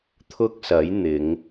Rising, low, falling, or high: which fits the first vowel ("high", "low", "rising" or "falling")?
high